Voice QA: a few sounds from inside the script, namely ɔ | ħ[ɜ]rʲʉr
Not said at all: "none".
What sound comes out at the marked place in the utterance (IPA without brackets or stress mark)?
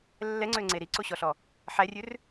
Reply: æ